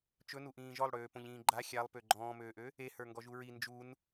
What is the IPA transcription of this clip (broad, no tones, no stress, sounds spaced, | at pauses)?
t͡ʃ ɵ n u ʔ ĩː ʒ ɔ lˠ ɽ øː p õ ʎ ĩː ɡ͡ǃ a xʲ a lˠ p ø ɡ͡ǃ ɔ̃ː m øː ʔ ø | e h ə˞ ŋ ɡ ɔ ʒ u ɹ i n d͡ʒ u n